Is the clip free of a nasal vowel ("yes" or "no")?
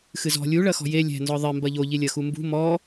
yes